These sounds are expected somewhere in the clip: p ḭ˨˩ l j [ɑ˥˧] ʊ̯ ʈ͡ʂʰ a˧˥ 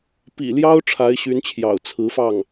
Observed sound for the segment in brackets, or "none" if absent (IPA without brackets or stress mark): ɑ˥